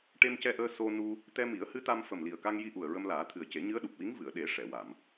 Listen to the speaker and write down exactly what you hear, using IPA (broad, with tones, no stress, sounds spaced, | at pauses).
ʈ e˧ m c ɛ˧ ʔ əː˧ s o˧ n u˧ | t̪ ɛ˧ m i˨˩˦ ə̯ h ɨ˧˥ t̪ a˧ m f ə˨˩ m l i˨˩ ə̯ k a˧ ŋ j i˧ ʔ u˨˩ ə̯ ɹ ə˧ m l aː˨˩˦ t̪ʰ ɨ˨˩ ə̯ c e˨˩˦ ɲ ɨ˧˥ ə̯ ɗ u˨˩ p̚ w i˧˥ ŋ v ɨ˨˩˨ ə̯ ɗ e˨˩˦ ʂ ɛ˨˩˨ w a˨˩˨ m